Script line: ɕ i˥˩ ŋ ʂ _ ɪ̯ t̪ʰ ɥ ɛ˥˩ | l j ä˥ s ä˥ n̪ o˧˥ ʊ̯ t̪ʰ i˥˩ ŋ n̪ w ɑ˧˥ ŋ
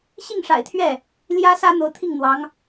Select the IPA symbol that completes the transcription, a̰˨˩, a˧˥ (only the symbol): a̰˨˩